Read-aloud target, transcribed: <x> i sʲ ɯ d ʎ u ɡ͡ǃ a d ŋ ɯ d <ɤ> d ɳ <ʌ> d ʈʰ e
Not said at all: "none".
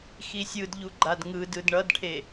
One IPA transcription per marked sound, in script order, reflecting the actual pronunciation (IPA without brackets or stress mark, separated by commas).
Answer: x, ɯ, ʌ